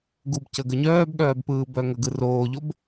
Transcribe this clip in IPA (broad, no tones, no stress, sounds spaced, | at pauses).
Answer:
ɡ u b c ə ɡ ə ɲ œː b ɠ œː b p ɯː b œ ŋ ə ɡ ɯ r oː ʎ o b